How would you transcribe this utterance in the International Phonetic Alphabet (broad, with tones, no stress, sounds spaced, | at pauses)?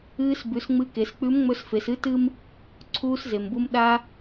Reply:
ɨː˧ s b ʉ˩˧ s ŋ͡m ɨ˧ k e˩˧ s k͡p ʉ˧˥ m ŋ͡m ɵ˧ s f e˩˧ s ɨ˧˥ t ɨ˥ m | ǀʰ uː˧ s z e˩ m b u˧ m ɗ a˧